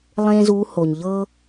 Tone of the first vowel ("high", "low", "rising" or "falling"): high